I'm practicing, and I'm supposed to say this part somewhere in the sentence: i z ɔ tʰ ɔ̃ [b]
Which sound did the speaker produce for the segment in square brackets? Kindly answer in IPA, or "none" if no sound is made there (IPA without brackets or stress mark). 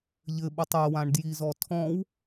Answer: w